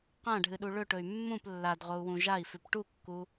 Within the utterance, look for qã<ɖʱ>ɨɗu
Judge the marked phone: correct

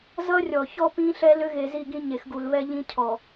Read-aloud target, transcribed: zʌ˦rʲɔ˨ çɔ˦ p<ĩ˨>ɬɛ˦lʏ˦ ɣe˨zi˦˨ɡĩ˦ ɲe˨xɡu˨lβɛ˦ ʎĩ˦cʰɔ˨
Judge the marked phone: incorrect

